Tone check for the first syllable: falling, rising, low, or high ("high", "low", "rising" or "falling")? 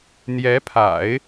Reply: rising